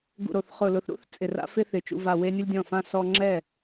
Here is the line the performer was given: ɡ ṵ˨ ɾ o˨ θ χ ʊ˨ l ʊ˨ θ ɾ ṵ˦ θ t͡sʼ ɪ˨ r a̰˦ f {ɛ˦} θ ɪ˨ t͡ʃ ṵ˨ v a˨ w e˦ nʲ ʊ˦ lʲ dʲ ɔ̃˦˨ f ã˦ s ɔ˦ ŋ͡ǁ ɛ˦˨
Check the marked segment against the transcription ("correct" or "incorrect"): incorrect